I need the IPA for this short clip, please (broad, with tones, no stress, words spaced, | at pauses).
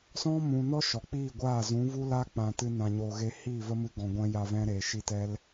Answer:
sɔ̃˦mũ˨nɔ˦ ʃɔ˨k͡piː˦˨ɡʷaː˦˨ zũ˨˦vu˦ la˦k͡pã˨ tɨ˧nã˨ɲoː˨ɣe˧ hiː˦˨ və˦mɨ˧ ɡɔ̃˨ɡʷɛ̃˦ja˧vɛ̃˦ ɾeː˨ʃi˦ tɛ˦l